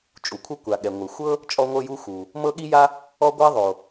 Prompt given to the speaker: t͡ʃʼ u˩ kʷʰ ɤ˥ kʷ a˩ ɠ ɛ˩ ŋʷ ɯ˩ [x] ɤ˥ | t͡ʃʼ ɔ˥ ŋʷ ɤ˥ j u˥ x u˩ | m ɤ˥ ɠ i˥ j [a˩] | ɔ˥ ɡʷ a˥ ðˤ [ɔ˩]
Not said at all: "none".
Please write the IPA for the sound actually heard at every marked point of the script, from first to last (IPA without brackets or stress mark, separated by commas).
xʷ, a˥, o˩